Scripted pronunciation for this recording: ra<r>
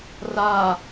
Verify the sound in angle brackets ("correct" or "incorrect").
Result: incorrect